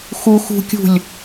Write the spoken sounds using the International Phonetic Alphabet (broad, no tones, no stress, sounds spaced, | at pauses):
x u x ṳ kʲ ṳ lʲ